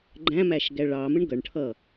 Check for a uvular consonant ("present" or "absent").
absent